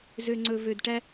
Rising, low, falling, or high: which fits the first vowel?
low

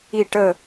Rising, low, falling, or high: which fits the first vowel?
falling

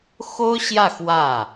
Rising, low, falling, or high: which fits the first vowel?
high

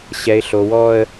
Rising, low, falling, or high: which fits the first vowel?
low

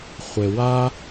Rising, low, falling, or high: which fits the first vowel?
low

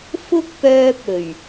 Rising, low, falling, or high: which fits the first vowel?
high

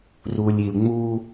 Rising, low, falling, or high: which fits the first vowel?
low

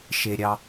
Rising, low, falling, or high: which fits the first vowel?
low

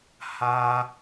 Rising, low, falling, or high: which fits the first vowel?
high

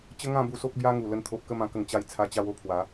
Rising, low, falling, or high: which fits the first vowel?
high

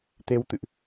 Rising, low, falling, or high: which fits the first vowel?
rising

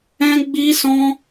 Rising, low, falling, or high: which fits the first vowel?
high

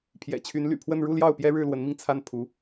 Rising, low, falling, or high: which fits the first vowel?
low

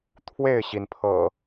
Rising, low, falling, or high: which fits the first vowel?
falling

